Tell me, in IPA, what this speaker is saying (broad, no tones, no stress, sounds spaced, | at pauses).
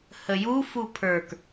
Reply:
h ə j u f u pʰ ə˞ k